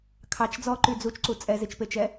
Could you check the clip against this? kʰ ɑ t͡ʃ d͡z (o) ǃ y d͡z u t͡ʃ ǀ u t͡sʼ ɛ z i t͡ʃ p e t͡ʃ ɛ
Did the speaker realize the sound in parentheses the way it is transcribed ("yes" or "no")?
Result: no